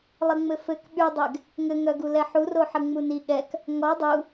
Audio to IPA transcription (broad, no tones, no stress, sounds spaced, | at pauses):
lˠ ə ŋ͡m ɘ f ɘ k ɓ y dˤ ɛ ɡ | ŋ ɘ ŋ œ ɡ u l ɛ ħ u r o ħ ə ŋ͡m u n i ɠ ɛ k | ŋ ɔ dˤ u